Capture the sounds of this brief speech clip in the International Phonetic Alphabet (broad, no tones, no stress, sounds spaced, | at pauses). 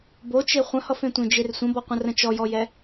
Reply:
b o t͡ʃ e χʷ ə̃ h ʌ f ẽ tʷ ẽ d͡ʒ e r sʷ ə̃ b ɔ qʷ ə̃ r ə̃ t͡ʃ ɔ j ɔ j ɛ